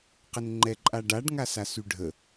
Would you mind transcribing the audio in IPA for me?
qənŋ͡ǃɛǃʼaɖaɖ ŋasasyɖʱə

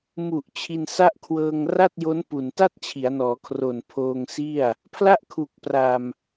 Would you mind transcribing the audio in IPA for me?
mu˨˩ʔ t͡ɕʰi˧nsa˥˩ʔkʰwɤː˧ŋ ra˥˩t̚jo˦˥n pu˨˩n ta˥˩t̚t͡ɕʰi˩˦a̯nɔː˩˦kʰro˨˩n pʰoː˧ŋsi˥˩a̯ | pʰla˥˩ʔkʰu˨˩k̚pra˨˩m

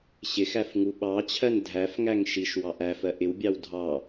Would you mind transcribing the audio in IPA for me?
ɕɪxæf ŋuɓɑt͡ɕʰɜn dʱæfŋæŋ ʃiʃ wɑʔæfɜ ʔɪwbʲɑw dʱɑ

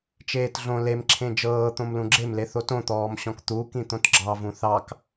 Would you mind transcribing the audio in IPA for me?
t͡ʃeːtɮõ lemǁʰẽ d͡ʒɤː t̪õmlũɡ͡ǁemle θotõt̪ɔːmɕɔ̃k t̪ukĩ t̪õtɡ͡ǁɑvũ θɑk

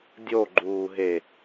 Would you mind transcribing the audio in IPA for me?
dʲoɡ͡ǃuːɦe

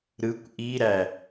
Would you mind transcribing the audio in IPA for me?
ɾɯkʷ ʔiɾæ

